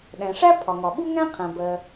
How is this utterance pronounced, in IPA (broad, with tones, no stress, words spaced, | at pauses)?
ɗæ̃˩ʂæ˥ pʰɒ˩ŋɒ˩ ɓu˥ŋæ̃˥ qʰæ̃˩bɜ˩